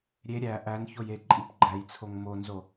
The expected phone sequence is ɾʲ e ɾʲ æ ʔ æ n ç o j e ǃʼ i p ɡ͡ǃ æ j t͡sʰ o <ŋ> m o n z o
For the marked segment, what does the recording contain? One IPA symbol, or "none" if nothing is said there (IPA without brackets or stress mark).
ŋ